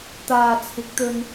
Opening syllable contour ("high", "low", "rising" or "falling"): low